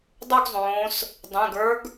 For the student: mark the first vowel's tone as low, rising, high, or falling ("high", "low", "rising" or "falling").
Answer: falling